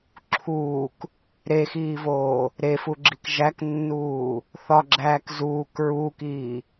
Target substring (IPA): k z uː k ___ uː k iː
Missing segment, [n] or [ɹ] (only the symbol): ɹ